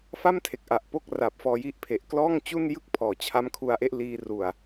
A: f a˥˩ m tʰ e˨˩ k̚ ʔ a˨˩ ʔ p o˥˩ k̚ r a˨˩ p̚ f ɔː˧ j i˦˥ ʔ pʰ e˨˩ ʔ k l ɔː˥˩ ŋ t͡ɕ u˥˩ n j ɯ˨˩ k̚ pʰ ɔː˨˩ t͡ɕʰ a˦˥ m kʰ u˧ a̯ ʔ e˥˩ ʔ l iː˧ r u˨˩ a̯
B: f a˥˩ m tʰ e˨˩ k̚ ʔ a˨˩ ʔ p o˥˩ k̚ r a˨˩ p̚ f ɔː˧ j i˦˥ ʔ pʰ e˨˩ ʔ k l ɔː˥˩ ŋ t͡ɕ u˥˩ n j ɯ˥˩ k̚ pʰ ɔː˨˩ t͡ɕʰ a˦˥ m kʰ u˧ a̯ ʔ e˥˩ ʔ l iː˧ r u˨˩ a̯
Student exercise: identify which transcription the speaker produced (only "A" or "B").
B